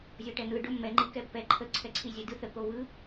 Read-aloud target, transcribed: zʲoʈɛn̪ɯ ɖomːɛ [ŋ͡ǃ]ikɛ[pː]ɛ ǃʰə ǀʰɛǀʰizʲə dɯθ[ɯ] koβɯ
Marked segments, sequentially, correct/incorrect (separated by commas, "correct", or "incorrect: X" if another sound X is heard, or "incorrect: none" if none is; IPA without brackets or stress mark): correct, correct, incorrect: ə